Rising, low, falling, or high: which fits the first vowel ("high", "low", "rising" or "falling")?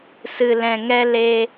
low